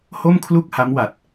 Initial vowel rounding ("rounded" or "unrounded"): rounded